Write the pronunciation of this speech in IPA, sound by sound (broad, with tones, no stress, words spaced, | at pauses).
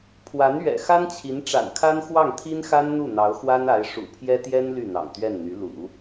pʰwa˧˥nɥɛ̰˨˩ xa˥nt͡ɕʰi˧˥nʈ͡ʂa̰˨˩nkʰa˥n xwɑ˥˩ŋt̪ʰi˥nxa˥n n̪u˥˩n̪ɑ˧˥ʊ̯ xwa˥na˧˥ɪ̯ ʂṵ˨˩pʰjɛ˥t̪jɛ˥n ly˥˩n̪ɑ̰˨˩ŋt̪ɥɛ˥˩nn̪y˧˥ lṵ˨˩˦